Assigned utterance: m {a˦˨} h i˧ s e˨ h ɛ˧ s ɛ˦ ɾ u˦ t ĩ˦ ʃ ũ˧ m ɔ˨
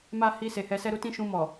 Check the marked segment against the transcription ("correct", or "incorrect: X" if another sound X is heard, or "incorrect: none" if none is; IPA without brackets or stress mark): incorrect: a˦